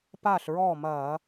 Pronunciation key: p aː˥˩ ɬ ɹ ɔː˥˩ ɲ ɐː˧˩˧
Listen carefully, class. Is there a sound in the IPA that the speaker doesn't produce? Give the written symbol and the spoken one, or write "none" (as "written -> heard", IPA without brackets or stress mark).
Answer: ɲ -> m